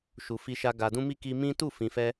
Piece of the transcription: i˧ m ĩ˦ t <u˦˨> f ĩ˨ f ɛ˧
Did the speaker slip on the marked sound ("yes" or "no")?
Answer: no